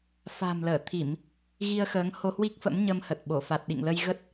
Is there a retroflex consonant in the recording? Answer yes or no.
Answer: no